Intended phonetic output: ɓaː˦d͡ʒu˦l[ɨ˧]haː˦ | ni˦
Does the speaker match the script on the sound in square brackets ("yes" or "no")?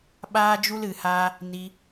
yes